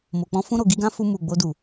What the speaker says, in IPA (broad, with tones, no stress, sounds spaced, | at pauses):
m o˨ k͡p ɔ̃˧ f ũ˧ ɾ o˨ ɡ i˧ ɡ ã˧ f u˧ m u˨ ɡ͡b o˧ d u˨